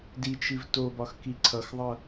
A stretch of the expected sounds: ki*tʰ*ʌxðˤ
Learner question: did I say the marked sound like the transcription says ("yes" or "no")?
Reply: no